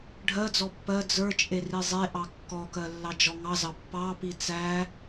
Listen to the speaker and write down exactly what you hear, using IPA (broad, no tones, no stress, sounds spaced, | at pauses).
ɖʱ ɜ d͡z ɔ pː ɜ d͡z ə˞ t͡ʃʼ e r i zˤ e ʔ ɑ kː ɔ k ɜ lː ɑ d͡ʒ ɔ ŋ ɑ z ɑ pː ɑ p i t͡s æ